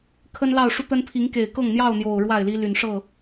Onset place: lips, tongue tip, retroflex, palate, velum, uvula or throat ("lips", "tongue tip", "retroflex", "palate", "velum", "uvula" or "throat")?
velum